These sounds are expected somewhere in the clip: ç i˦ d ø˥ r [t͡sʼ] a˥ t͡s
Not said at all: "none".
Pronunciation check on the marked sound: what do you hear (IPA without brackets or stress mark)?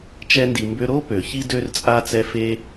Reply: t͡sʼ